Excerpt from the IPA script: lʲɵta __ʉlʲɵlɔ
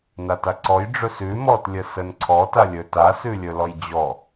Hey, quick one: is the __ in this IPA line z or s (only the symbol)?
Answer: s